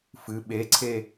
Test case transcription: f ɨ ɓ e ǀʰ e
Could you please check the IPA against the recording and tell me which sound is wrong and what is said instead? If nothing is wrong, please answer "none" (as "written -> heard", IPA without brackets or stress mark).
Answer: none